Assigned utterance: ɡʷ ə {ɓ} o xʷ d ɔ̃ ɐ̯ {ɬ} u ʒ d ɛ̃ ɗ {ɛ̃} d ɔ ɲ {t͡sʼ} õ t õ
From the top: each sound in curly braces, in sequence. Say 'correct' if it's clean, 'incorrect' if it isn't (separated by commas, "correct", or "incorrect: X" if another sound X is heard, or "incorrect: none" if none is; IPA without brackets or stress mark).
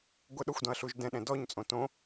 incorrect: ɗ, correct, correct, correct